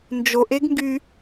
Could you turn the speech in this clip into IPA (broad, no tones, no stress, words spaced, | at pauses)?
nd͡ʒoʔeɡŋɡy